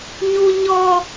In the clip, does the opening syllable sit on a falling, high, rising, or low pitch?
high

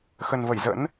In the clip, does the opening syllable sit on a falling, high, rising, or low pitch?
low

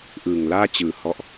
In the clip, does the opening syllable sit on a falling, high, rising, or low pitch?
low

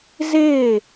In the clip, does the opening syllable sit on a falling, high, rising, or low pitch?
falling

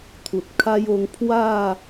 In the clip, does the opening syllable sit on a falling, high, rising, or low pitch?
low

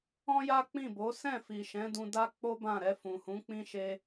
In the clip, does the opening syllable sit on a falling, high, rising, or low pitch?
high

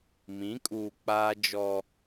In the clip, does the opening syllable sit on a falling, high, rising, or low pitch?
rising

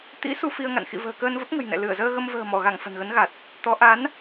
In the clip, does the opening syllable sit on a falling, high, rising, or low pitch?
rising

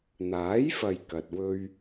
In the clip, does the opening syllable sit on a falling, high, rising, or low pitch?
rising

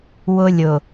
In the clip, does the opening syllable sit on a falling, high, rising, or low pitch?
high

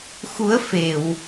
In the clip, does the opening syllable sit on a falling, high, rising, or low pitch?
rising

